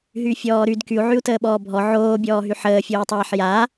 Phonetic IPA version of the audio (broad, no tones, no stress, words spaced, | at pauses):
ɦyfʲɔːɾyd kyu̯ʕyu̯ təːɓɔːbʱɔ ʕoːbʲɔːɦy ħəːfʲoːtˤaːħ ja